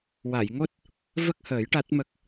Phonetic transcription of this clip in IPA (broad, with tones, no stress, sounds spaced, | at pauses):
w a˨˩˨ j ŋ o˦˥ t̚ | v ə˦˥ k̚ h əː˨˩˦ j ʈ a˦˥ t̚ m ə˦˥ k̚